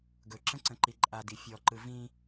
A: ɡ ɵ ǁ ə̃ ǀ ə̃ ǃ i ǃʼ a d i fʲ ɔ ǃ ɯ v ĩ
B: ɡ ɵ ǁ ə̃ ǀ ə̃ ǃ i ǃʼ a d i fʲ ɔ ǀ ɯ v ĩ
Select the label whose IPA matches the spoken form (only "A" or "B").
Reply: A